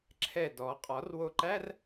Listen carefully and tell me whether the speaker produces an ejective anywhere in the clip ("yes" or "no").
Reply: yes